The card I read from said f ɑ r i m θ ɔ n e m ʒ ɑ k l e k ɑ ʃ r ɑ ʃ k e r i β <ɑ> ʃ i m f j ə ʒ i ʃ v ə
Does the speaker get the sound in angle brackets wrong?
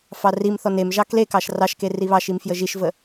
no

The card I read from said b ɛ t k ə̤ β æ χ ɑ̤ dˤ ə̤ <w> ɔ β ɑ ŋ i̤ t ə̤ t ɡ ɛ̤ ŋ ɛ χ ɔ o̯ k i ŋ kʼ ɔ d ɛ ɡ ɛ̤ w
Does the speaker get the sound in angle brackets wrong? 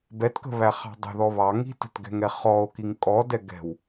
yes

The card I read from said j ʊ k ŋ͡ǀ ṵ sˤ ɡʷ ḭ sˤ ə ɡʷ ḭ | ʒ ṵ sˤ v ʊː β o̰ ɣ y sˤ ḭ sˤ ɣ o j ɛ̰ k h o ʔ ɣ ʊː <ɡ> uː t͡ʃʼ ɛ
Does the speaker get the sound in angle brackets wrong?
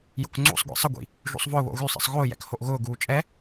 no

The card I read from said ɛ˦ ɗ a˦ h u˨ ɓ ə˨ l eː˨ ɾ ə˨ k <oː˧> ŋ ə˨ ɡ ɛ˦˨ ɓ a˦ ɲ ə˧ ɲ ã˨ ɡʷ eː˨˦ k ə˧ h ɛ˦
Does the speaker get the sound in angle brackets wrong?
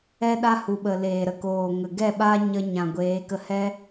yes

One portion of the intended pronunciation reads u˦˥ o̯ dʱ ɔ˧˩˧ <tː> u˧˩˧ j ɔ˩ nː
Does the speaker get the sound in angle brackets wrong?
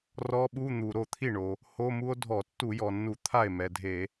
no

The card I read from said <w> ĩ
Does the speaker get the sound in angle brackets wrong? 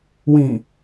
no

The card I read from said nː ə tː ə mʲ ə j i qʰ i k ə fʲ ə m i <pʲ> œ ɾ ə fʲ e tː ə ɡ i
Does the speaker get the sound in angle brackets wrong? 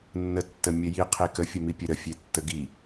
no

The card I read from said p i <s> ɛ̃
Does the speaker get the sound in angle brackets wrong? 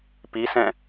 no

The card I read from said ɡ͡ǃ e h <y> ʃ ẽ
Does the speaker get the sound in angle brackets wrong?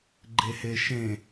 yes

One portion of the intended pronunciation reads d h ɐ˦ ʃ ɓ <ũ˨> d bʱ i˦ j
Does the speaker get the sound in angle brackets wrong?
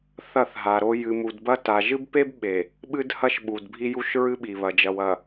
yes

